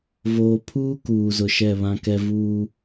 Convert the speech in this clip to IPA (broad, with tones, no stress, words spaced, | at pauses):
voː˨pʰuː˦ kuː˨zʊ˨ ʃɛ˦˨βã˦kɛ˦ vuː˦